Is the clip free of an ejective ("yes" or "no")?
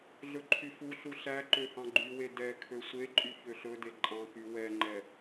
no